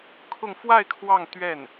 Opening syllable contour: falling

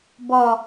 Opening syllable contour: low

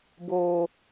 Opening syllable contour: low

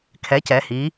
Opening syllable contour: rising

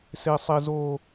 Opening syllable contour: low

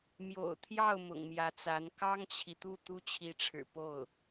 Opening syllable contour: low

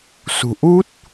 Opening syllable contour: low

